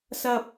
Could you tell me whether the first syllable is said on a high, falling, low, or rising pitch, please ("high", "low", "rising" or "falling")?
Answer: high